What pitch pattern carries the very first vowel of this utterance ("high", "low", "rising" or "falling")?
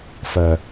low